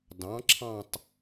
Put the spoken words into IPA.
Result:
d ɑ̃˩˥ ǁʰ ɑ̃˦˨ tˤ

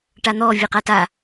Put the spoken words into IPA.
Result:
ʈ a n̪ ɔ vʲ ɛ q a t a

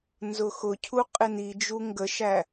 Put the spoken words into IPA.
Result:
n z ʊ x ʊ cʰ u qʼ ɪ n i d͡ʒ u ŋ ɡ ə ʃ æ

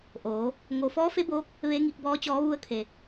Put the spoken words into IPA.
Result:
ʔ oː˩˧ | ŋ o˩ f ɔː˧˥ f e˧˥ b oː˧˥ k̚ | ʋ e˧˥ ŋ i˧ k̚ b ɔː˧˥ t͡ɕ ɔː˧˥ ʋ u˧ ə̯ kʰ e˩

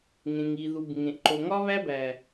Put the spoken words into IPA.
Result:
ŋ ẽ˨ ŋ i˨ ð u˨ b ŋ ẽ˨ ʔ ǃ o˨ ŋ ɒ˦ β æ˦ b æ˨

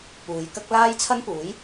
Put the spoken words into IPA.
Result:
p uː˨˧ j k ɐ˥ k̚ l aː˥ j t͡sʰ ɐ˥ n p uː˨˥ j

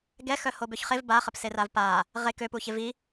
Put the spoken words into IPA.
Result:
ɡ ɛ x œ h o b ø ç χ e v b a χ ə p s e r a v p a | ʁ e k ø p u ç e v i

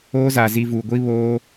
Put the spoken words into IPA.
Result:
oː˦ z aː˨ z i˨ v uː˨ ɡʷ i˦ β oː˦

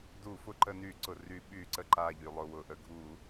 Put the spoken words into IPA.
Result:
d u˧˩˧ f ʊ˧˩˧ ǃ ə˧˩˧ n y˧˩˧ ǀ ʊ˩ r y˧˩˧ ɓ y˧˩˧ ǀ ə˧˩ ǃ a˧˩ ʎ y˩ lˠ ʊ˩ w ʊ˩ ʔ ə˧˩˧ ɡʱ u˧˩˧

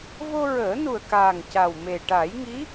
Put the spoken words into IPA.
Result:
v o˧ ɹ əː˨˩˦ n u˨˩ ə̯ k aː˨˩ ŋ c a˨˩ w m e˨˩ ʈ a˨˩˦ j ŋ i˧˥

